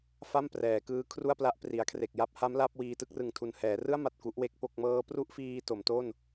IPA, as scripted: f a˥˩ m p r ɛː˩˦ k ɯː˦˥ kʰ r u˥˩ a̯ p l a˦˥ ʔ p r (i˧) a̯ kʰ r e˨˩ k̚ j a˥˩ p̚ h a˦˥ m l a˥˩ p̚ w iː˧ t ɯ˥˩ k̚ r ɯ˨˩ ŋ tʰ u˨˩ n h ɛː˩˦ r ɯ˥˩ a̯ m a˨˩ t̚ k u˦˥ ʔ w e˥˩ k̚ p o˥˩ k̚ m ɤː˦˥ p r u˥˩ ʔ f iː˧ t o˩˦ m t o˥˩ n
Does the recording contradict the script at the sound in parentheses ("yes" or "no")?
yes